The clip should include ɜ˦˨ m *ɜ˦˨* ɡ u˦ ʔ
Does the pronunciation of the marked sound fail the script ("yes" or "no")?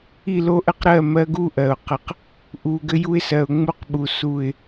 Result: yes